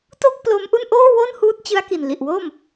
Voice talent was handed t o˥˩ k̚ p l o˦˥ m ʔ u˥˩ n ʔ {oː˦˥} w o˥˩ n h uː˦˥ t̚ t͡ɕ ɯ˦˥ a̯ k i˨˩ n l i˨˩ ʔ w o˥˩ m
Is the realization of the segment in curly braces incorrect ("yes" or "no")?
yes